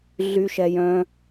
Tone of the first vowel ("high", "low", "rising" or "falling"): high